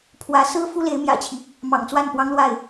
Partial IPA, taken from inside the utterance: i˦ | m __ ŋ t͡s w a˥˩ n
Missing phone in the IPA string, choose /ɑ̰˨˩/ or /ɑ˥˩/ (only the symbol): ɑ̰˨˩